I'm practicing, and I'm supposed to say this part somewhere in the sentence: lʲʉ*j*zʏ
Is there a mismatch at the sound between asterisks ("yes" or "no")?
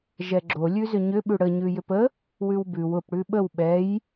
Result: yes